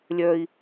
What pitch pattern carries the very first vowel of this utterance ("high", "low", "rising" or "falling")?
high